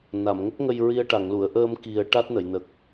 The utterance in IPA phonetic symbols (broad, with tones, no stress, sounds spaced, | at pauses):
n a˨˩˨ m ŋ ə˦˥ k̚ ŋ ə˧ j ɹ i˧ ə̯ ʈ a˨˩˨ ŋ l u˨˩˨ ə̯ ʔ əː˧ m k i˨˩˦ ə̯ ʈ a˦˥ t̚ n ə˨˩˨ j n ə˨˩ k̚